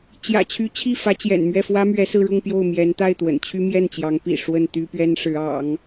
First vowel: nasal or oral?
oral